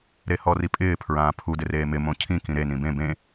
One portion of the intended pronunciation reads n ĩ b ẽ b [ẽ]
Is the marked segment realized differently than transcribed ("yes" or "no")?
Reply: no